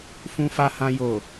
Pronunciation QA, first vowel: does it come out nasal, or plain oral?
nasal